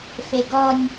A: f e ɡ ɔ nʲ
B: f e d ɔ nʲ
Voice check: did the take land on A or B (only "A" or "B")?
A